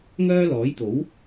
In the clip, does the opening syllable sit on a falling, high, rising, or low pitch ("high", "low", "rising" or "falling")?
high